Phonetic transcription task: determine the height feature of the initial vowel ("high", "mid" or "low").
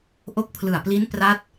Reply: mid